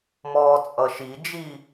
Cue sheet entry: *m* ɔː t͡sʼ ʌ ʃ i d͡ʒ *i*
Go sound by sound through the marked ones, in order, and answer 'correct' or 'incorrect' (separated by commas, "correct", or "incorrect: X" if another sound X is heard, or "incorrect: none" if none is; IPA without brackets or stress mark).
correct, correct